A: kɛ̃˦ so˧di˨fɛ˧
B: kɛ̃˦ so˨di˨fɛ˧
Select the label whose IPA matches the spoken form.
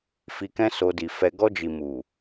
A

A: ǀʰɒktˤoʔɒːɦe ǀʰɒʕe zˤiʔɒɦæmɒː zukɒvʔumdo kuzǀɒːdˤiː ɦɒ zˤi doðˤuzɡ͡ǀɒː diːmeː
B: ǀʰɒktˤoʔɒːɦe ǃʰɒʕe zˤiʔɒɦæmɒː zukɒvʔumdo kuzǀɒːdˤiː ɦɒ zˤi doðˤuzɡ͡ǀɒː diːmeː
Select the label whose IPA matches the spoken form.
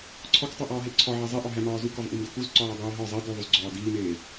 A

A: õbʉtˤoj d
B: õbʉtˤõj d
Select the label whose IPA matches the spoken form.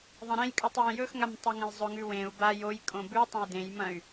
B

